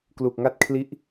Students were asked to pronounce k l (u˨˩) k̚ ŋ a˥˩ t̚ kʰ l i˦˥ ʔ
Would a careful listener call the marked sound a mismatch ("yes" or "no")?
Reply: no